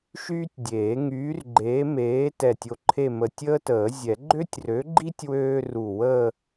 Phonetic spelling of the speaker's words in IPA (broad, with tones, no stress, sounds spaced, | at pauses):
ʃ yː˥ tʲ dʲ eː˨˩˦ ŋ yː˨˥ r ɡ͡ǃ eː˨˥ m eː˨˥ t ɛ˧˩ tʲ o˧ ǃʰ e˥˧ m ə˧˩ tʲ əː˥ t əː˨˩˦ zʲ ɛ˨˩˦ ɡ͡ǃ ø˥ tʲ r ø˨˥ ɡ͡ǃ i˥ tʲ w øː˥ r u˧˩ w əː˥˧